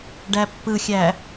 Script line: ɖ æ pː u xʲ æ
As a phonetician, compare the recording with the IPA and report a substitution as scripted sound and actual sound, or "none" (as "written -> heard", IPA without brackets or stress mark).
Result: u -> ɯ